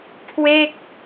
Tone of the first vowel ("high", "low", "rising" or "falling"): falling